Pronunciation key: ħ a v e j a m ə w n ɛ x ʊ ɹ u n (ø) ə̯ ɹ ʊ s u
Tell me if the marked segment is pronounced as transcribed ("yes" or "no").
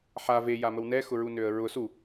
yes